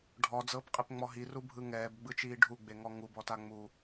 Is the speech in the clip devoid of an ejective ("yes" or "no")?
no